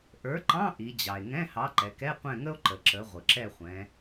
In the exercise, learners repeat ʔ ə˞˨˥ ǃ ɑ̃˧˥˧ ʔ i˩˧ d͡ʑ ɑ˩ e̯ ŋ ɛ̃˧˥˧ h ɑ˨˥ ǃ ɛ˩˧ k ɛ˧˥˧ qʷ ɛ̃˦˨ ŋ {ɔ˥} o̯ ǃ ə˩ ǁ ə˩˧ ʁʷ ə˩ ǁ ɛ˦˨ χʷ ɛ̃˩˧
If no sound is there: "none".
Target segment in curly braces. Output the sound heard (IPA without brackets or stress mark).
ə˥